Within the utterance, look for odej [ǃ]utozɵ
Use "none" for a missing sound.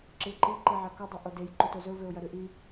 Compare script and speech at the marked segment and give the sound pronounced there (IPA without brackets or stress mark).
ǃ